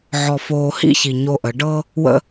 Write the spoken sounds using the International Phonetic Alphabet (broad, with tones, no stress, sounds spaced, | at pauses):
ʕ ɔ˨ f oː˨ h ḭ˦ ç i˨ ɲ o˦ ʔ ə˨˦ ɖ ɤ˦ | w ə̰˦